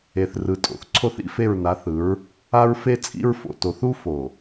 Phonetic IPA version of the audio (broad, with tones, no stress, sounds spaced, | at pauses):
e˨ θ r ɯ˨ tʼ o̰˨ θ ǀʰ o˦ θ ḭ˦ f e˦˨ ɹ n a˨˦ θ ɯ˨˦ ɹ | a˦ ɹ f e˦ t͡sʼ ḭ˦ ɹ f o̰˨ t o˨ θ u˦ f o˨